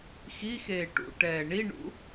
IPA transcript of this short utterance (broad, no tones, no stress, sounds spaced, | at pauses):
x i x eː ʈ ṵ ʈ ɛː ɳ i ɳ ṵ